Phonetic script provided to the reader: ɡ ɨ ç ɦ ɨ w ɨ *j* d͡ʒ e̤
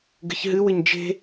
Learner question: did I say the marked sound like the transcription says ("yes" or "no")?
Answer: no